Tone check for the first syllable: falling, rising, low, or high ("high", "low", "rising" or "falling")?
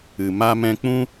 low